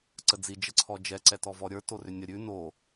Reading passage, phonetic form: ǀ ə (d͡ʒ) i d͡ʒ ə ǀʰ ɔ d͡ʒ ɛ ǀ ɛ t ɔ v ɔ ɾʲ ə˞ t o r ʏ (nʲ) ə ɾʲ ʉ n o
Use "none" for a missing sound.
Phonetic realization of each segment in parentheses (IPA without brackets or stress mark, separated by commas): d͡z, nʲ